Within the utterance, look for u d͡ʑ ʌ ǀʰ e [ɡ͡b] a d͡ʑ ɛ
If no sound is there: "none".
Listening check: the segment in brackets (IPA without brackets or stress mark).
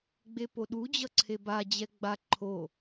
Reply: b